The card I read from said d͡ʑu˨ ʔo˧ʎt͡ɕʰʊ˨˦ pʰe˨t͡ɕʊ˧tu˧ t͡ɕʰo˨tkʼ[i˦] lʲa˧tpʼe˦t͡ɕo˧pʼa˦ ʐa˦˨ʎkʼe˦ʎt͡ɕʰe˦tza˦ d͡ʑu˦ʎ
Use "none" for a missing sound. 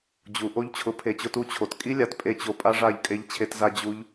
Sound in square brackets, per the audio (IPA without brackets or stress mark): i˦